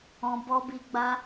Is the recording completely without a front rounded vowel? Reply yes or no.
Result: yes